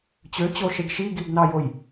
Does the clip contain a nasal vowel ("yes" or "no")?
no